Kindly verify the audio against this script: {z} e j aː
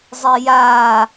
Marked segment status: incorrect: zˤ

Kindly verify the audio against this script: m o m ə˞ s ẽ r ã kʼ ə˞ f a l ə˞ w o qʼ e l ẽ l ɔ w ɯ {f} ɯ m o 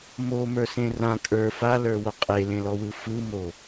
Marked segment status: correct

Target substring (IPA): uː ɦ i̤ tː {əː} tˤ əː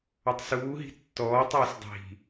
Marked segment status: incorrect: ɔː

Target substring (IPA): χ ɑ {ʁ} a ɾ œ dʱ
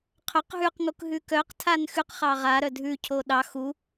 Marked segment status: correct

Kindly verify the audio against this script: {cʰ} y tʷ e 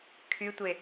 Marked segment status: incorrect: kʰ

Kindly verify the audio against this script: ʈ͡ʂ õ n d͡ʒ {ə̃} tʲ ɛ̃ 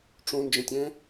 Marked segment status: correct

